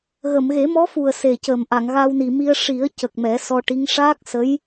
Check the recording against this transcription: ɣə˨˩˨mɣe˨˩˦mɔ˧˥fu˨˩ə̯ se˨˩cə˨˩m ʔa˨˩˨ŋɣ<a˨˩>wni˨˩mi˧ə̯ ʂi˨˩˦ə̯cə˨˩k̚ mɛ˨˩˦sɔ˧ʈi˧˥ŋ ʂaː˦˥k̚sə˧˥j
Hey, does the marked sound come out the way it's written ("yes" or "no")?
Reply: no